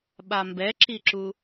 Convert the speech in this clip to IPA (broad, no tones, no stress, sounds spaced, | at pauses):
ɓ a m b ɛ ǁ i ǁ u